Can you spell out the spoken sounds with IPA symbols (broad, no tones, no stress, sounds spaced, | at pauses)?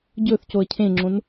ɟ ɵ θ c o ə̯ cʰ ẽ ŋ͡ǁ õ n